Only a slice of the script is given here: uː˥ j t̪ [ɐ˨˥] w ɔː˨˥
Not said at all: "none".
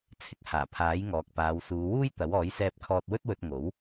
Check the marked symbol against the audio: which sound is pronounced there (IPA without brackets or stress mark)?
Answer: ɐ˨˥